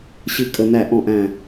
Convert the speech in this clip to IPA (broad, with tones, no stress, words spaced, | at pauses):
ɕɨ˦˨kʼə˦˨ næ˦˨ ʔɔ̃˦˨ʔæ̃˦˨